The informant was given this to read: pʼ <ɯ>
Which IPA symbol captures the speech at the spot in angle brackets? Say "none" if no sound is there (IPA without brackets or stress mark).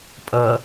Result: ɤ